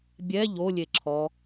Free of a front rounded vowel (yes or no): yes